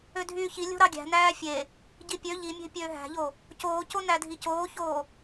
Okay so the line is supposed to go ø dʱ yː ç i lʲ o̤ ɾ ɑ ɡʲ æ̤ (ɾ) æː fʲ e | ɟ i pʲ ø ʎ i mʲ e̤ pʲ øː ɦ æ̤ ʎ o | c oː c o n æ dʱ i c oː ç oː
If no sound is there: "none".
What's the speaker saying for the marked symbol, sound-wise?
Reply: n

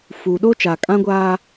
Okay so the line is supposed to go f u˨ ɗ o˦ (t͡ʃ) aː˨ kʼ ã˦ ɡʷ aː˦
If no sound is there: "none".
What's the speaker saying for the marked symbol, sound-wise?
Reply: t͡ʃ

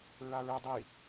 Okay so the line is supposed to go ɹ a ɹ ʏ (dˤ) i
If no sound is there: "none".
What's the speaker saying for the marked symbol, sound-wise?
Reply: dˤ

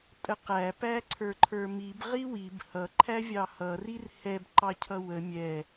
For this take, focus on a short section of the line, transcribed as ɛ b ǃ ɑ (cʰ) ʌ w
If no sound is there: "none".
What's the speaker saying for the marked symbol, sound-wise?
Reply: cʰ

